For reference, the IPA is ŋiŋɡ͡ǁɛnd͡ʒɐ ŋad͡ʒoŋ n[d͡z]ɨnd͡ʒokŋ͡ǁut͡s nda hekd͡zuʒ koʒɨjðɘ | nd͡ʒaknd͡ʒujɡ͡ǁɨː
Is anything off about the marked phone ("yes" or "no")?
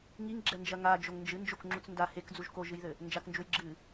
yes